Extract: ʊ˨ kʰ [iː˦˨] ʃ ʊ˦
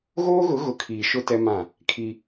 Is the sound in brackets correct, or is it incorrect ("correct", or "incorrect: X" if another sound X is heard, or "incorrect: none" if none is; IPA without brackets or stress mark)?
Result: incorrect: iː˨